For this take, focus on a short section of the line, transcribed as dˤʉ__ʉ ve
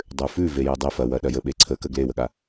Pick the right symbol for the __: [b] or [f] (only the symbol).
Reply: f